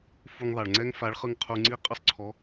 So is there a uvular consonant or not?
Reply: yes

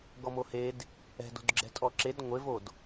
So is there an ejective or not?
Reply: yes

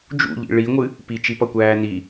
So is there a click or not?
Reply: no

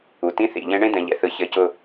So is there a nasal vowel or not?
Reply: yes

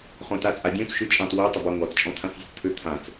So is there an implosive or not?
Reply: no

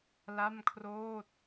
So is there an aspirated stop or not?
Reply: yes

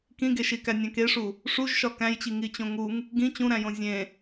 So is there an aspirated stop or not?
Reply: no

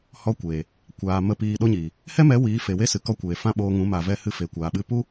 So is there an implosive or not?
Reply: yes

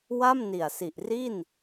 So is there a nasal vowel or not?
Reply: no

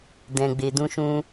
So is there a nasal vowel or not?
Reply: yes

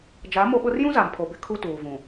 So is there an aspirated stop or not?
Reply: yes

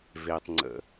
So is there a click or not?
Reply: yes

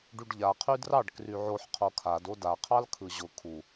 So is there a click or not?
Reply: no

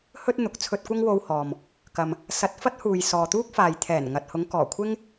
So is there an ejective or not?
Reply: no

